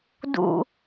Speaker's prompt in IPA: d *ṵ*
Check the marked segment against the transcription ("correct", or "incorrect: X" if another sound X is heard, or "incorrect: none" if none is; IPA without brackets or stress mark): correct